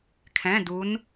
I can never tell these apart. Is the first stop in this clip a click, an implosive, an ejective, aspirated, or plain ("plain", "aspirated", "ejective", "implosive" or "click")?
aspirated